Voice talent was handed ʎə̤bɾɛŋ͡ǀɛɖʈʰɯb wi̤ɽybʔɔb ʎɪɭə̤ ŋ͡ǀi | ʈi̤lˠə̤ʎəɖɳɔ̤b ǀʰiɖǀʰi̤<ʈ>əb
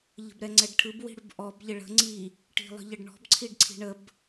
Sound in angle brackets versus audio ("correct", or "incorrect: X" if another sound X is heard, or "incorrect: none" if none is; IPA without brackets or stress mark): incorrect: ɳ